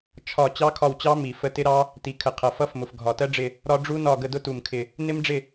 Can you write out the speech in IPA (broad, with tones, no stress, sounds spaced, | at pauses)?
t͡ʃʰ ɒ˦˨ t͡ɕ ɑ˦˥ kʰ ɒ˦˨ w t͡ɕ ɑ˦˥ m i˨˩ f ə˦˨ t ɪ˦˥ ɾ ɑ˦˥ | t i˨˩ kʰ ə˨˩ qʰ ʌ˨˩ f ʌ˦˥ f m ʊ˨˩ f ɡʱ ɒ˨˩ t ɜ˦˥ ɖ͡ʐ ɪ˦˨ | ɾ ɒ˦˥ ɖ͡ʐ u˦˥ n ɒ˦˨ ɡ ə˦˨ d ʊ˦˥ t u˨˩ m kʰ ɪ˨˩ | n ɪ˦˥ m ɖ͡ʐ ɪ˦˨